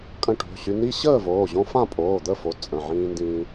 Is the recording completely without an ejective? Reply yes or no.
no